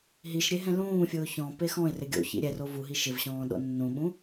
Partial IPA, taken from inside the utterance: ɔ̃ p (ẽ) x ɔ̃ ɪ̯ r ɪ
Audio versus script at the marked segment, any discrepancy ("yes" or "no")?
yes